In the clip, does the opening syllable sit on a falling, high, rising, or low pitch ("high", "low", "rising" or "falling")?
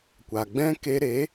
low